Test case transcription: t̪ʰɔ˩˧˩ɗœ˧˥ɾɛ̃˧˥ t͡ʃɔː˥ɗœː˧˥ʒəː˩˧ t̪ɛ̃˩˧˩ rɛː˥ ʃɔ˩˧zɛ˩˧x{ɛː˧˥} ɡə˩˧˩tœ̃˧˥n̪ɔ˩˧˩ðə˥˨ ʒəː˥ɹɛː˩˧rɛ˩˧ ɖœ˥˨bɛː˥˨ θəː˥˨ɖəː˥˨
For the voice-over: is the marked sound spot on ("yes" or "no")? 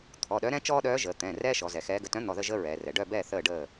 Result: yes